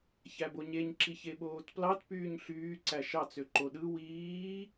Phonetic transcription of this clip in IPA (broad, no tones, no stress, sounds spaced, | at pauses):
ç æ b o ɲ e ɲ ǁ i ç e ɓ oː t p l ɑ t p yː ɲ ɬ yː ǀ æ ʃ ɑ t͡s ø ǃ o ɗ ɯ w iː